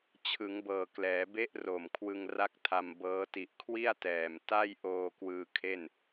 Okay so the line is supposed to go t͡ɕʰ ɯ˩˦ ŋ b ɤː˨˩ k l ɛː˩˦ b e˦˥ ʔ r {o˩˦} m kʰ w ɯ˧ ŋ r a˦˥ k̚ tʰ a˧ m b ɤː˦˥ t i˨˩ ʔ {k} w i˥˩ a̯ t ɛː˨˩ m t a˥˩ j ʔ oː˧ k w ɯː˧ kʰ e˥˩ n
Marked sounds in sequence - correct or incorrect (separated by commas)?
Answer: incorrect, incorrect